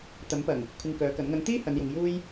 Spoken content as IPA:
t̪ɐ˨˥mpɐ˨˩ŋ | kʷʰɪ˧ŋkœː˨˥kɐ˨˥n ŋɐ˨˧ŋt̪iː˥ hɐ˨˧njʊ˨˧ŋjuː˥j

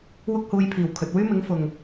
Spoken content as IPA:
wʊ˥k̚huː˧jpʰiː˨˩wkʰɵ˨t̚ wyː˥mɪ˨˥ŋfʊ˨ŋ

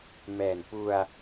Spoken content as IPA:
mɛː˨˩n pu˧a̯

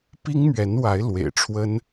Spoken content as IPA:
pi˥ŋ mɥɛ˧˥nwa˧˥ɪ̯ lwḛ˨˩ɪ̯ʈ͡ʂʰwə˥n

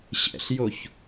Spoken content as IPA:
ɕɛ̰ɬjoç

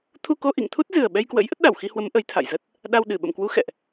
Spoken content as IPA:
t̪ʰu˧ko˧ʔḭ˧˨ŋt̪ʰu˦˥t̚ zɨ˨˩ə̯ɓɛ˧jkwə̰˧˥j ʔə˦˥t̚ɗa˧˩wxi˧hwə˨˦m ʔə˨˦jt̪ʰa̰˧˨j zə˦˥t̚ | ɗa˧w ɗɨ˧˩ɓə̰˧˨mkwu˨˦ xɛ̰˧˨ʔ

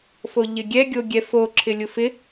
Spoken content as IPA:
foʎɪɡʲɛ ɡʲoɡʲɛfo ǁʰɪlʲʊfɪ

